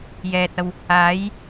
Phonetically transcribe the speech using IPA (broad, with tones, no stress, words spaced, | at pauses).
jɛː˨t̚ɐ˧w | aː˨˥j